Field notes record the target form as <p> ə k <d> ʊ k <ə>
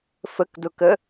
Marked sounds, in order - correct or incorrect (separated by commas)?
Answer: incorrect, correct, correct